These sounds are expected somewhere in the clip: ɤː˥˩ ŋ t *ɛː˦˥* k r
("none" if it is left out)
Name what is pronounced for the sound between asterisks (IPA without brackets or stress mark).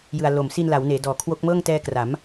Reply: ɛː˦˥